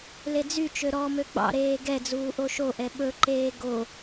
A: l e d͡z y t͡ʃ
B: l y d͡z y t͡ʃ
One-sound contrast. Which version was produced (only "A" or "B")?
A